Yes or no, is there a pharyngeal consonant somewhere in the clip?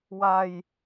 no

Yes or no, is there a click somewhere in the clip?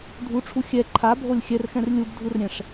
yes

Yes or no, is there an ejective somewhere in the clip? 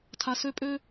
yes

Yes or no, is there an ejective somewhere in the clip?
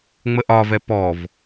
no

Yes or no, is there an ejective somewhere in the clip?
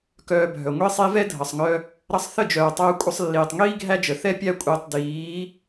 yes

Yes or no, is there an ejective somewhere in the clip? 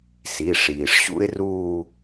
no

